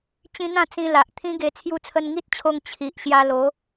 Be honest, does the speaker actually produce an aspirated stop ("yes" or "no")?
yes